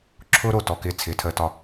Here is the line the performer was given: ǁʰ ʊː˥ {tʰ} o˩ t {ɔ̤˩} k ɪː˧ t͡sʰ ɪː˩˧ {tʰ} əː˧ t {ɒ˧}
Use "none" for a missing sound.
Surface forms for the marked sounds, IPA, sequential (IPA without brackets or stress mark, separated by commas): ɾ, ɔ˩, tʰ, ɒ˧